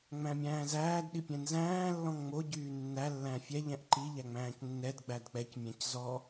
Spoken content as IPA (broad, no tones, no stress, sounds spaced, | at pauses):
ŋ͡m æ̃ mʲ æ̃ː z æː d ɗ i pʲ ɛ̃ n z æ̃ː lː ɔ̃ ŋ ŋ͡m o ɟ yː nː æ lː æ̃ fʲ ɛ ʎ ɛ̃ ʔ ǃ i ʎ æ ŋ͡m æ̃ː c nː ɛ d ɡ͡b æ d k͡p ɛ c mʲ æ̃ c z ɔ